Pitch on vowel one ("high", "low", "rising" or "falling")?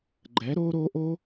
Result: rising